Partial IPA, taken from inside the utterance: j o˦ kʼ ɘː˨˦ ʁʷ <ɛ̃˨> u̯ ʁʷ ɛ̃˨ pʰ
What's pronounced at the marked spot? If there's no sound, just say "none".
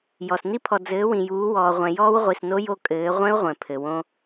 ɛ̃˦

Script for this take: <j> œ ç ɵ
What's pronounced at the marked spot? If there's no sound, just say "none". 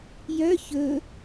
j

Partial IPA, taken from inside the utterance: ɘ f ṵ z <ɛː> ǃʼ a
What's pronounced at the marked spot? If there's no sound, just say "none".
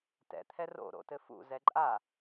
ɛ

